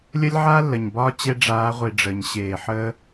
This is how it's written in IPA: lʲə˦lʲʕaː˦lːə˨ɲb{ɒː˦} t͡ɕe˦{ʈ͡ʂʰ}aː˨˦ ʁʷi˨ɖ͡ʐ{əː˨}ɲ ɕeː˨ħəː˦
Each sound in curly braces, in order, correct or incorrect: correct, incorrect: ɖ͡ʐ, correct

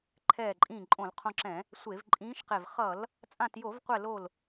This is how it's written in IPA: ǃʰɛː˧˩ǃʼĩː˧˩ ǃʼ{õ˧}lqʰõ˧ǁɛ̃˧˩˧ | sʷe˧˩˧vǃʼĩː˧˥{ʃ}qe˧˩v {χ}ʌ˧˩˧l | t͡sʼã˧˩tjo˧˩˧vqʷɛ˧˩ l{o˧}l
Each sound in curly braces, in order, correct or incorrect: incorrect: õ˧˩˧, correct, correct, incorrect: o˧˩

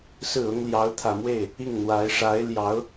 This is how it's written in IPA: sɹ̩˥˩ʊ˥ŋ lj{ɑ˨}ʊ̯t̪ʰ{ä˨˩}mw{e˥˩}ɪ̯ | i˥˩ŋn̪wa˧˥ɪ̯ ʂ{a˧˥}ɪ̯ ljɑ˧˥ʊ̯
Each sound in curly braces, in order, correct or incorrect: incorrect: ɑ˧˥, correct, correct, correct

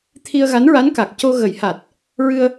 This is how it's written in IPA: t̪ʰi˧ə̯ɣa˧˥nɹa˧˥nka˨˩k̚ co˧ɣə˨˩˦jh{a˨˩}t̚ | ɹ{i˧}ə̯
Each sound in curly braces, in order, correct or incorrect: correct, incorrect: ɨ˧

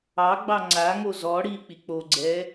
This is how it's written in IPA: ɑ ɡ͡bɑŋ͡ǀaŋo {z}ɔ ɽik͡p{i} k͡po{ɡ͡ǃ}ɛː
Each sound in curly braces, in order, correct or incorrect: correct, correct, incorrect: ɡ͡ǀ

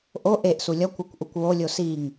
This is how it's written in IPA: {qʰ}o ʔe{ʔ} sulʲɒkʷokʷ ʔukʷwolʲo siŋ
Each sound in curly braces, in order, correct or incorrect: incorrect: ʔ, correct

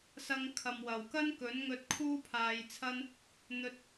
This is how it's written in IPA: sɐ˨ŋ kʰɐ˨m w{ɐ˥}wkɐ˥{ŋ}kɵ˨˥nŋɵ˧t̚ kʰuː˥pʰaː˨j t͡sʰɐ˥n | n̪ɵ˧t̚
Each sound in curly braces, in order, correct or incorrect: incorrect: ɐ˨˩, incorrect: n

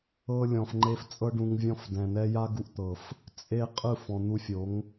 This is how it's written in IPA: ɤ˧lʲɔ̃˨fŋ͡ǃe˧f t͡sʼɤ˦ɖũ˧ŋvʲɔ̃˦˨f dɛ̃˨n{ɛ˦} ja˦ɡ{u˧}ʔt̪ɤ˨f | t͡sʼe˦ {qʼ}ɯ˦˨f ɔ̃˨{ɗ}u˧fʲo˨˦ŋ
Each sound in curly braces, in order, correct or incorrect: correct, correct, correct, incorrect: n̪

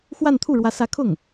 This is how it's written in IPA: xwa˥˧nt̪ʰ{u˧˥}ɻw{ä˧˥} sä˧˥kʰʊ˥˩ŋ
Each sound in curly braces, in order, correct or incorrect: incorrect: u˥˩, correct

